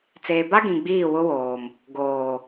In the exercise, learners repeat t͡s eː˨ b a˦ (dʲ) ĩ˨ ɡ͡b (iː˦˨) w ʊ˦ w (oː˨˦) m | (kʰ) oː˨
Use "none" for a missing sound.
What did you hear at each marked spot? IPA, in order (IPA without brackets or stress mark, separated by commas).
ɡ, iː˦˨, oː˨, ɡ